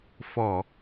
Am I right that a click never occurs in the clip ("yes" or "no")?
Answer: yes